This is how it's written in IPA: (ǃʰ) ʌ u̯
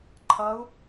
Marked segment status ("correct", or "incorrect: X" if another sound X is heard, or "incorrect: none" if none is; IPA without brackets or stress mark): correct